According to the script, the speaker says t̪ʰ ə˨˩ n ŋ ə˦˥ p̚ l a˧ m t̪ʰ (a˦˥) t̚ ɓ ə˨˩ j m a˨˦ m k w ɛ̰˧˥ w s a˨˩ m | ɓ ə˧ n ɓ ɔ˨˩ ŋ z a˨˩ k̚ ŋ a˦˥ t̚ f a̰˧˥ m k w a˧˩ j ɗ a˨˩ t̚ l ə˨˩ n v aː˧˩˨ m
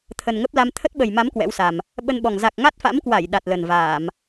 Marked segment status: incorrect: ə˦˥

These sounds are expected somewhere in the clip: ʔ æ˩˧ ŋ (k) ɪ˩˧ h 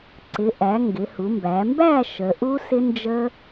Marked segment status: incorrect: ɡ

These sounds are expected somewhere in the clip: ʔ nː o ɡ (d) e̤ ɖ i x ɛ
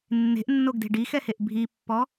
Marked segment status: correct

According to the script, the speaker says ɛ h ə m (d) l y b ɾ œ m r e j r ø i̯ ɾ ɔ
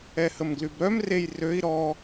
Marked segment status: incorrect: ɡ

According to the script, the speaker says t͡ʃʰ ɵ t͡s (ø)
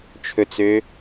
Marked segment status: correct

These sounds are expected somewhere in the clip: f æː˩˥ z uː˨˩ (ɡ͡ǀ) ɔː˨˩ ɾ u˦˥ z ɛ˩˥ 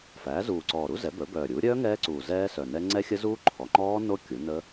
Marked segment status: incorrect: ǀ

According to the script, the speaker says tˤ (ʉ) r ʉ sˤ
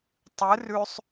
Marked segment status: incorrect: ɨ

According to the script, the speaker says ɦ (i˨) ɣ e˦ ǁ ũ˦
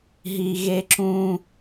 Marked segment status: correct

